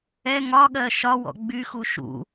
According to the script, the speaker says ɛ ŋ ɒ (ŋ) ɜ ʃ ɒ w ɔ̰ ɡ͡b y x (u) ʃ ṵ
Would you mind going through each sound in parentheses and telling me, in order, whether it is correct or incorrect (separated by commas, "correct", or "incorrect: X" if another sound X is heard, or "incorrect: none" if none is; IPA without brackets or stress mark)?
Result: incorrect: ɠ, correct